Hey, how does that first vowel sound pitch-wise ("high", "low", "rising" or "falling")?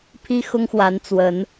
high